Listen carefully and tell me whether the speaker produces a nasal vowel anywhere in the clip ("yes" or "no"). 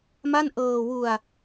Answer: no